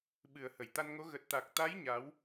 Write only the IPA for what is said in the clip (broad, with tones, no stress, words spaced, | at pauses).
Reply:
ɓɨ˨˩ə̯ hə˧˩jt̪a˧nŋo˨˦ ɣə˨˩t̚t̪a˨˩k̚t̪a˨˦j ɲa˨˦w